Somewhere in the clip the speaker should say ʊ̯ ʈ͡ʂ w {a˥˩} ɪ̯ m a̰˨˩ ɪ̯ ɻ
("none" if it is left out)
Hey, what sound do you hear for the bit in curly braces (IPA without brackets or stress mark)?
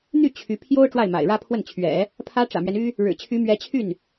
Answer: a˥˩